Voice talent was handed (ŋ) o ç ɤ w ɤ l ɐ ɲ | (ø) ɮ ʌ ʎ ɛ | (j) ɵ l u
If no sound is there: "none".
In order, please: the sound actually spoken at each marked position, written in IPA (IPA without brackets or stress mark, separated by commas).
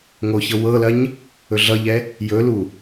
ŋ, ɵ, j